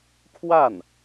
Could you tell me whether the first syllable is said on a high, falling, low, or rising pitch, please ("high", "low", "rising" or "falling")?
falling